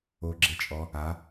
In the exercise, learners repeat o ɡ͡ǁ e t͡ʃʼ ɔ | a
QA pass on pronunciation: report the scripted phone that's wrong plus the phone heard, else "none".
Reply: none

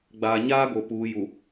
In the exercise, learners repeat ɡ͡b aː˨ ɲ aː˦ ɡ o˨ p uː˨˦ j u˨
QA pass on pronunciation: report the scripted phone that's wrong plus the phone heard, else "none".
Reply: none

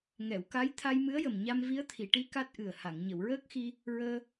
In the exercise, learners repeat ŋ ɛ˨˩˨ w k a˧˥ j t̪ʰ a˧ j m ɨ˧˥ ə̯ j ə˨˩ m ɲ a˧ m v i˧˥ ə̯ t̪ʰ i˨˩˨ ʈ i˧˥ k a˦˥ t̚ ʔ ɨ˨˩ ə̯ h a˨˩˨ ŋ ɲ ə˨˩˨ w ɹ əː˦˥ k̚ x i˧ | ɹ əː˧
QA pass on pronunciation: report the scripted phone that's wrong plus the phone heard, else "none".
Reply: none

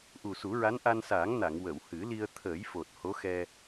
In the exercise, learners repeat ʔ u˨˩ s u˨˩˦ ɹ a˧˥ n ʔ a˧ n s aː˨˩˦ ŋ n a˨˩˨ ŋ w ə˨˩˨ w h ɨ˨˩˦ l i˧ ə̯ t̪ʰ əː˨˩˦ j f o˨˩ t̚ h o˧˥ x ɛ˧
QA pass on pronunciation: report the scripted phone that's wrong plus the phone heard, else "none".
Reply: none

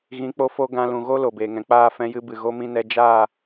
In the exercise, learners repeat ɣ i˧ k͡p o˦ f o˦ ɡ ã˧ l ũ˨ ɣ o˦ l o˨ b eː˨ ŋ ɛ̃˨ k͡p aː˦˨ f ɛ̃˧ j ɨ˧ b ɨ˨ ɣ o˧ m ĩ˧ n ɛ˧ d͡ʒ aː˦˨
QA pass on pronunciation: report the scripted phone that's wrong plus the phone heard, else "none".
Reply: i˧ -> ĩ˧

